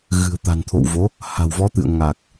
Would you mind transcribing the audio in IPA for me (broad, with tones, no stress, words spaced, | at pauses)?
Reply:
ɣɨ̤˨˩ə̯t̪a̤˨˩nt̪ʰo̰˧˨wvo˨˦ | ha̤˨˩wvɔ˨˦t̪ɨ̰˧˨ə̯ ŋa˨˩k̚